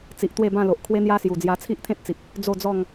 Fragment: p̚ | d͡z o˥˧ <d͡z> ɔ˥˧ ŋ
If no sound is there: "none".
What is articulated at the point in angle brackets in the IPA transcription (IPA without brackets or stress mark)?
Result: d͡z